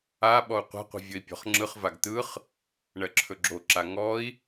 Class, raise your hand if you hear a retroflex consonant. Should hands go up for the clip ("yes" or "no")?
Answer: yes